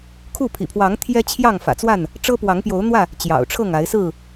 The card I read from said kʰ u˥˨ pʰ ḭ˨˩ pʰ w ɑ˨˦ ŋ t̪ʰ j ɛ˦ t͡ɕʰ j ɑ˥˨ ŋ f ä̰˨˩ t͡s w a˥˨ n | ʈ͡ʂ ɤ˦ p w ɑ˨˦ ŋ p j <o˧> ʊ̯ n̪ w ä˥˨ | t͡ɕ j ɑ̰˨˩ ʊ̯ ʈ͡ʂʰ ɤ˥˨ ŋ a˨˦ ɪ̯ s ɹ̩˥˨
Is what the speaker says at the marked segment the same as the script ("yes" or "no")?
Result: no